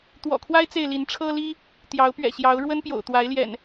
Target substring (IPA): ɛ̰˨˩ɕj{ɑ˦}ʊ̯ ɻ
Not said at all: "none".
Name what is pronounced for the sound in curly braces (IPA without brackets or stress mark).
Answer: ɑ˨˦